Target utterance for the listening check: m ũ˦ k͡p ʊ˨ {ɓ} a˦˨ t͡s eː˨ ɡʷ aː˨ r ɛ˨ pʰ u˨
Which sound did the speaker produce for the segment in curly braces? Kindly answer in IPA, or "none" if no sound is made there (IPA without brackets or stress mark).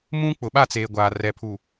ɓ